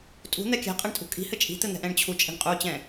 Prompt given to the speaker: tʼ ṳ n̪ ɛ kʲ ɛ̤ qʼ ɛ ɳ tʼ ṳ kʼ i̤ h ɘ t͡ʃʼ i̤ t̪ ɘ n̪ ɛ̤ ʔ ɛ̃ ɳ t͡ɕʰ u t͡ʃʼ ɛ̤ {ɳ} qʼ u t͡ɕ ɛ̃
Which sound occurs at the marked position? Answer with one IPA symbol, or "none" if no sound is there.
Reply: ɳ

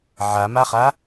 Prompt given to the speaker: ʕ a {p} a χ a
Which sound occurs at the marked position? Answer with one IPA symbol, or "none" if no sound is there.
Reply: m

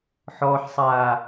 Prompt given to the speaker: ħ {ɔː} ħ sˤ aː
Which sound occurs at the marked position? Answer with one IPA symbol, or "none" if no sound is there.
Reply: ɔː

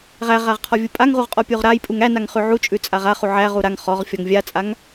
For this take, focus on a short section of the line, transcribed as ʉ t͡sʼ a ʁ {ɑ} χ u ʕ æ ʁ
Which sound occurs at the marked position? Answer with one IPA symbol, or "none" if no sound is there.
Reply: a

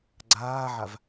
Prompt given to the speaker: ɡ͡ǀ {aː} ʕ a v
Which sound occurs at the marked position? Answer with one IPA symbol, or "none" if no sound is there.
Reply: aː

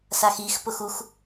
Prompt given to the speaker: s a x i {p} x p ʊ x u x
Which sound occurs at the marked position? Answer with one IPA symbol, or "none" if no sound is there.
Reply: none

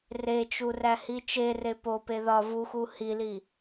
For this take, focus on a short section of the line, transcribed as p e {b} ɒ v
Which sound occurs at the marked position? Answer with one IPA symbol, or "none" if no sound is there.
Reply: ð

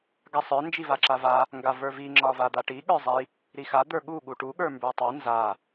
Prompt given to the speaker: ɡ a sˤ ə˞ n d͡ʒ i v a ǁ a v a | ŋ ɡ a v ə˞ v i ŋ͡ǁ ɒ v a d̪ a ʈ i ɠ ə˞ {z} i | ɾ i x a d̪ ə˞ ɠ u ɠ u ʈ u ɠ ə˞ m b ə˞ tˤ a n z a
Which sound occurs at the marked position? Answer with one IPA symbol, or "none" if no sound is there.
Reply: zˤ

